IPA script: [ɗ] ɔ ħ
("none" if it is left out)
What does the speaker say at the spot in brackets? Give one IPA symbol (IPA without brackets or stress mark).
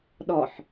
ɗ